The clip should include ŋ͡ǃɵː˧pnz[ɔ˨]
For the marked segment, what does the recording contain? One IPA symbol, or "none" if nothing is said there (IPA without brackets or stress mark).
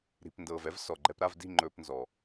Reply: ɔ˨